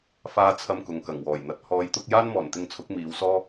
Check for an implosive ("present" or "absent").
absent